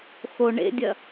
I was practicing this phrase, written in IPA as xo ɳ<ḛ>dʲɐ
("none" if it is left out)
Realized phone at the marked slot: ḛ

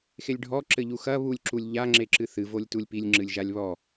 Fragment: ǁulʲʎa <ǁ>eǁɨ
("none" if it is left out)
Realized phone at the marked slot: ŋ͡ǁ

